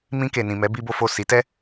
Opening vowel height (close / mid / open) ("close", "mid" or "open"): close